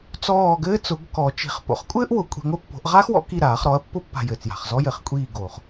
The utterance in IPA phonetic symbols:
t͡sɔː˦˨ɡɘː˥t͡sʊ˩˥ɡ kɔ˨˩˦t͡ʃi̤˨˩˦χpo̰˩˥χ kʷʼɘː˥ʔ wʊ˨˩kʷʼi̤˦˨ŋʷɘ˥ pːo̤˨˩˦ʔ ʁaː˥xwɔ̰˩˥ ki˦˨ ɾaː˨˩˦χɾɔ˩˥ɐ̯pːʊ˥ pːa̤˦˨jɘː˨˩t͡sja̤˨˩χ zɔ˥jɘ˨˩˦χkʷʼiː˦˨ɡo˨˩χ

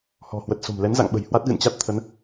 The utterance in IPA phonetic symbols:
hɔ̤˨˩hwə˨˩t̚so̤˨˩mlɛ˨˦n za̰˧˨ŋɓə̤˨˩jhwa˦˥t̚ ɣɨ̰˧˨nt͡ɕa˦˥t̚t̪ʰə˨˦n

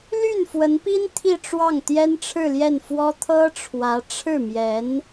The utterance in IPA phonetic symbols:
ly˥˩nfwə˧˥npi˥n t̪ʰi˥˧ʈ͡ʂwɑ˥˩ŋ t̪jɛ˥nʈ͡ʂʰɻ̩˥˧ljɛ˥˩nfwɔ˥ t̪ʰɤ˥ʈ͡ʂʰwä˧˥ ʈ͡ʂʰɻ̩˥˩mjɛ˧˥n

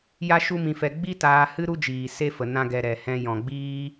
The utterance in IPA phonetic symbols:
ja˦ʃu˦mĩ˧fɛ˧ ɡ͡bi˦taː˧ hɨ˦ɾu˦d͡ʒiː˨ se˦fə˨ nã˦ɡɛ˧ ɾɛ˨hɛ̃˧ jɔ̃˨ɡ͡biː˦

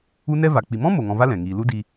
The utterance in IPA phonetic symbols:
u˦ nɛ˦va˨ k͡pi˨mɔ̃˦ mo˨ŋɔ̃˧va˦ lɛ̃˨ŋiː˧ lu˦di˧

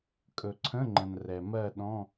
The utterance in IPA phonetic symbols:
kʼɵ˩ǀʰə̃˧˥˧ŋ͡ǃə̃˩n rɛ˩mɜ˥˧ ɗɔ̃˧˥˧

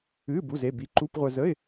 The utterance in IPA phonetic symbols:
ɨː˧˥˧ bu˧˥˧ze˧˥˧bi˧˥˧ ǃu˧˥˧pʁʷœ˧zə˧˥˧ɪ̯

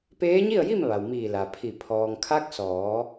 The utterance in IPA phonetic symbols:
peː˧˥ɲi˥˨ə̯ji˥˨m ʋa˩wmiː˧˩ la˩pʰi˧˩ pʰɔː˩ŋkʰa˧˥k̚sɔː˩˧

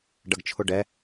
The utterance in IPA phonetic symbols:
ɖɐɡt͡ʃʰʊɖɛ

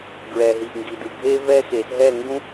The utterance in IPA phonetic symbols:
ɡɹɛ˨ɦi˨ʔŋɡi˨dɯ˨ ɡʱe˥vɛ˥xe˨˩˦s ɦɛ˥˧ŋɡũ˥

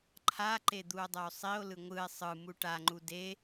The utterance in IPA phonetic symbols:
ǃʰaǃe d̪uo̯dˤɛo̯sˤio̯lɯ ŋʷɯe̯ sˤɯ muʈaŋ͡ǃu de

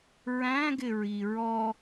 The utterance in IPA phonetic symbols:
ɹæ̃ɡɪɹi ɹɔ

